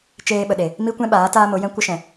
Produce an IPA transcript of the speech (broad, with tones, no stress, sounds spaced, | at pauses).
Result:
t͡ʃ eː˧ ɓ ə˨ ɗ e˨ | m i˦ kʷ ɛ̃˦ ɓ aː˨˦ t aː˦ m o˨˦ j ɛ̃˦ kʷ ə˦ ʃ ɛ̃˨